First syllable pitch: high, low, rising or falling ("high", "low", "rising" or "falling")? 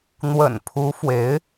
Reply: low